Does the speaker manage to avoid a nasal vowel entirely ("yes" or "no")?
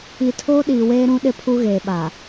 no